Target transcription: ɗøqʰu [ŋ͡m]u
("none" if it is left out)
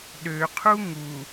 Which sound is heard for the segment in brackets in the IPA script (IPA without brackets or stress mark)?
ŋ